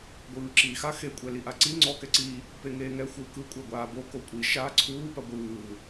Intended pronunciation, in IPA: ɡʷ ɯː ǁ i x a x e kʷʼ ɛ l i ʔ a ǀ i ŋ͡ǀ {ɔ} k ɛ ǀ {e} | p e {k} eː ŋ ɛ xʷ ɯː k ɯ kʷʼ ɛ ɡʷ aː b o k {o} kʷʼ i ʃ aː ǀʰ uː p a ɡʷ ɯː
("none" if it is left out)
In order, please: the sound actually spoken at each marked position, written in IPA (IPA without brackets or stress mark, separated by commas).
ɔ, i, ŋ, o